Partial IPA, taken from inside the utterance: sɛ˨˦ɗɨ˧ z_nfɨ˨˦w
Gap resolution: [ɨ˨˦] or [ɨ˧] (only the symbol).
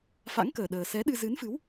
ɨ˨˦